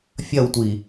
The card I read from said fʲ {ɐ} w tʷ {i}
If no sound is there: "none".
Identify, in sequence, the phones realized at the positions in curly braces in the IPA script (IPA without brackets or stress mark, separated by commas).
ɐ, i